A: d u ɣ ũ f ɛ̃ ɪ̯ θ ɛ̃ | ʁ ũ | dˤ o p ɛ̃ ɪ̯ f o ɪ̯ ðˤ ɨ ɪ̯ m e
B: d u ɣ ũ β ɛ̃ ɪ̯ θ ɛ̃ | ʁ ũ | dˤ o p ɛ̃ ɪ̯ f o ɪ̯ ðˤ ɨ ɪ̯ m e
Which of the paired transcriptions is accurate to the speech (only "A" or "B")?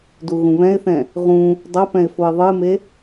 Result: B